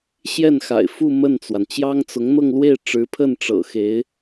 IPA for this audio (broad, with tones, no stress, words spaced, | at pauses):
ɕjɛ˥˩n xa̰˨˩ɪ̯ fu˥˧ mə˥˩nt͡swa˩n t͡ɕjɑ˥ŋt͡sʊ˧˥ŋ n̪ɤ˥˧ŋlwe˥˩ɪ̯ ʈ͡ʂɻ̩˧˥pʰə˥˩n ʈ͡ʂɤ̰˨˩xe˧˥ɪ̯